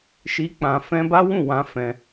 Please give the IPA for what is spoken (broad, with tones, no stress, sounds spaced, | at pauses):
ʃ i˧ k͡p ã˧ f ɛ̃˦ b a˦ w ũ˦˨ w ã˧ f ɛ̃˧